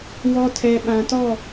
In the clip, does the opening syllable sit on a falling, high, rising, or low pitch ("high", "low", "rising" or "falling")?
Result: low